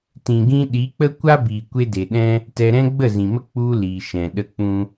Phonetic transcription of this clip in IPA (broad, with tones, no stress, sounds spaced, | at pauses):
t ĩ˨ ɡ ĩ˧ ɗ i˨˦ k͡p ə˦ kʷ a˦ b iː˨ kʷ e˦ d e˨ ɗ ɛ̃˦ | t ɛ˧ ɾ ɛ̃˦ ɡ͡b ə˦˨ z ĩ˨ m ə˦ k͡p u˧ l iː˨ ʃ ɛ̃˨ ɗ ə˦ k͡p ũ˦